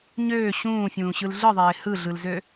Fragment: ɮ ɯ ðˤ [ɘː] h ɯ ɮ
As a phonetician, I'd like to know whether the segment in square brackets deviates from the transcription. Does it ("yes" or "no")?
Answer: yes